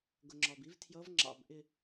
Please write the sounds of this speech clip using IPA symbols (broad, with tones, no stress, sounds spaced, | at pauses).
ɡ ʊ˩ ŋ͡ǁ ɒ˩ b i˧˥ v tʰ j ʌ˧˥ v ŋ͡ǁ ɑ̰˧˩ b ʔ ɪ˧˩